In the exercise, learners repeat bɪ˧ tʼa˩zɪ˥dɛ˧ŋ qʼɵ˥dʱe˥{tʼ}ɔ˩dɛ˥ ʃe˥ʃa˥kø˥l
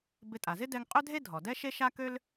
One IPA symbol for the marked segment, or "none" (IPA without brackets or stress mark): dʱ